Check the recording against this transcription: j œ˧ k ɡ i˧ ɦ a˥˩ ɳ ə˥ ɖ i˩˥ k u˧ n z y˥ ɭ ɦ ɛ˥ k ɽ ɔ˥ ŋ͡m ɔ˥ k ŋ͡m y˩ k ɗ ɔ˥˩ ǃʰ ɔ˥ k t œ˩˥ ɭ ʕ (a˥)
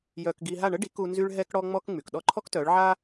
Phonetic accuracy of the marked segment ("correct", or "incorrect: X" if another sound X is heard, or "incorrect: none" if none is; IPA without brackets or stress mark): correct